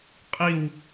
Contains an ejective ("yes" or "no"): yes